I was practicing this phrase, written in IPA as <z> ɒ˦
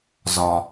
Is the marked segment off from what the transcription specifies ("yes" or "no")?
no